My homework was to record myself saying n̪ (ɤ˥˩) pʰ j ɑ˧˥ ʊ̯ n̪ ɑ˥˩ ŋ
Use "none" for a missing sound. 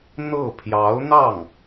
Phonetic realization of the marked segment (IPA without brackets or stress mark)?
ɤ˥˩